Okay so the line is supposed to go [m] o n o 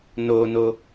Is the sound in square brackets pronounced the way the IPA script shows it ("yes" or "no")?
no